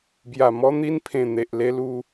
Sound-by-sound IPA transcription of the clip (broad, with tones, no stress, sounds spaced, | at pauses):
b j a˨˩ m ɔ˧ n̪ i˧ n pʰ ẽ˨˩ n̪ e˨ ʔ l e˧ l u˧